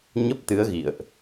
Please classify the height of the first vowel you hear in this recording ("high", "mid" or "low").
mid